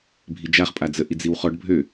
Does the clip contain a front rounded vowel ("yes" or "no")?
yes